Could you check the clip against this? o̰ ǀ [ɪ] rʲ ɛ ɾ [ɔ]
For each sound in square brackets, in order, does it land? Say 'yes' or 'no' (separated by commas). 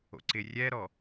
yes, yes